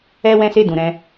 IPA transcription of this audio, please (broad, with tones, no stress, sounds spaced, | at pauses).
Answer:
ɛ˧ w ɛ̃˦ s e˦˨ d ũ˧ ɾ ɛ̃˦